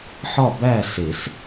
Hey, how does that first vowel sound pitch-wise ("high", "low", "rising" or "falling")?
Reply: falling